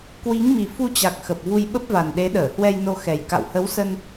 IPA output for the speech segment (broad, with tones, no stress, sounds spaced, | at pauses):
k w i˨˦ ŋ m i˨˩ f u˧ t͡ɕ a˨˩ k̚ x ə˨˩ p̚ v u˧ j ɓ ə˦˥ p̚ v a˨˩ n ɗ e˨˦ ɗ əː˧˩ h w ɛ˧ j n o˧ x ɛ˨˩ j k a̰˧˨ w h ə˨˦ w s ə˧ n